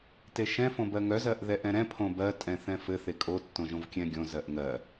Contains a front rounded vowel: yes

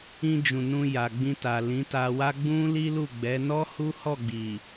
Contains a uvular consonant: no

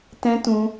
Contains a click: no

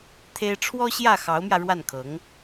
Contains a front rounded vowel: no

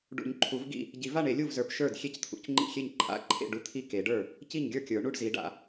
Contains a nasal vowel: no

